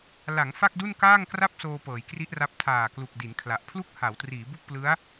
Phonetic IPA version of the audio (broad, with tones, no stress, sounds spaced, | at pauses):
l a˩˦ ŋ f a˥˩ k̚ d u˥˩ n k aː˥˩ ŋ k r a˥˩ p̚ s oː˧ p ɤː˩˦ j k r i˦˥ ʔ r a˦˥ p̚ tʰ aː˨˩ k l u˨˩ k̚ d i˩˦ n kʰ l a˨˩ ʔ pʰ l u˥˩ k̚ h a˩˦ w t r iː˩˦ b u˥˩ k̚ p l ɯ˦˥ a̯